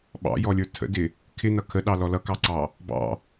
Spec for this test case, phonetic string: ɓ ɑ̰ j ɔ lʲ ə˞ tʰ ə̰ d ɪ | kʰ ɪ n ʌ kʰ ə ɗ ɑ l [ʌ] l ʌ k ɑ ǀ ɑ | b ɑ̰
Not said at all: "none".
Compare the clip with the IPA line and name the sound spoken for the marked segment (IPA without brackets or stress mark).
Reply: ɔ